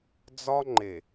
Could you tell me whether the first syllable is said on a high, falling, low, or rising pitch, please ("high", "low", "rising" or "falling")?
high